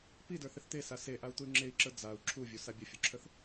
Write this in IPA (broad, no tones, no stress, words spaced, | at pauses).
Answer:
pidə˞θɪθ t̪esa seʔau̯t̪uy̯ ŋ͡ǁei̯ǁə˞ d͡zau̯ ǁʰuvʲusa bʲəfʲuǁʰəθ